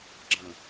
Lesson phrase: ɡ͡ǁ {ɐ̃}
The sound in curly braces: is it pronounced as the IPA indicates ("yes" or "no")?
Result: yes